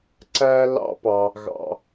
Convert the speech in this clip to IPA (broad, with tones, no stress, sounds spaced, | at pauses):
ǀ æ˦ l ɑ̰˦ p ɑ˧ | ɣ ɑ̰˧